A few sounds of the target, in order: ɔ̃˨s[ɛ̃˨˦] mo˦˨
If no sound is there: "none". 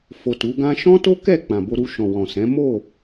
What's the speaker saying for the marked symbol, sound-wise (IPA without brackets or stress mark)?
ɛ̃˨˦